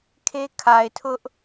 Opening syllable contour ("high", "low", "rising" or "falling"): high